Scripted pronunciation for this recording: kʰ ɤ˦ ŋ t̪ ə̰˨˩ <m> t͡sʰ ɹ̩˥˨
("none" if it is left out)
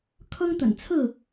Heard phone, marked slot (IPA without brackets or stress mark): n